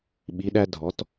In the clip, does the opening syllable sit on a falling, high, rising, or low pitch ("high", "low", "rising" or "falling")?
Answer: rising